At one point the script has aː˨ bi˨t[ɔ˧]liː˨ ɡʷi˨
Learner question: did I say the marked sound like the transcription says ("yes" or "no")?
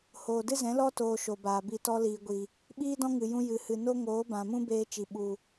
yes